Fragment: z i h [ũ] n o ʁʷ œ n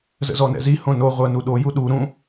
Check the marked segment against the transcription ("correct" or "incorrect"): incorrect